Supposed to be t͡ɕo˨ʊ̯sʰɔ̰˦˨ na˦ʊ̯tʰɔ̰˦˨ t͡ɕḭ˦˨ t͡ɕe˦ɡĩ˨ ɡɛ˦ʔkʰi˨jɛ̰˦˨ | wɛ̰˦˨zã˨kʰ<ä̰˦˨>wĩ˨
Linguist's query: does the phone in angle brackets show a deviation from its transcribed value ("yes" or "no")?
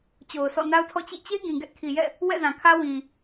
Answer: yes